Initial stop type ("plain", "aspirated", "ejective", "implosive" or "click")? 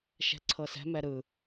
click